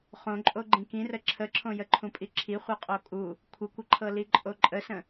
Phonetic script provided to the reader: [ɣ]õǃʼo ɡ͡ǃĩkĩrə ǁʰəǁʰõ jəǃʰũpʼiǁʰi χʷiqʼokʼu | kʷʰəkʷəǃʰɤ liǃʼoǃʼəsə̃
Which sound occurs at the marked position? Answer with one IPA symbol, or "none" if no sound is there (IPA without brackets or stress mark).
χ